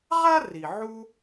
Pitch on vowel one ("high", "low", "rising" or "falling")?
high